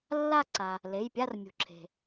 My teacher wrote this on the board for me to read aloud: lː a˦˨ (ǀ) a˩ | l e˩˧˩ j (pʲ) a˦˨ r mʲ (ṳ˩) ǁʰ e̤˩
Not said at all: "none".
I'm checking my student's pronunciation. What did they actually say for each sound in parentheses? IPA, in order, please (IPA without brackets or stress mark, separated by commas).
ǀ, pʲ, ṳ˩